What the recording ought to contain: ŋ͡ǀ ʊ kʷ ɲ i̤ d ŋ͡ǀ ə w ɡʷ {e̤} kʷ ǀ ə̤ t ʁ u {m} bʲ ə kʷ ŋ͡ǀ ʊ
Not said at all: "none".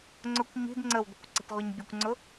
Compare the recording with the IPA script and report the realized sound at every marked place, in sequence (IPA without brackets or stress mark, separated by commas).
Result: i̤, ɲ